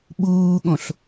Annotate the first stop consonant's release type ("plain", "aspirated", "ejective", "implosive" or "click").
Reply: implosive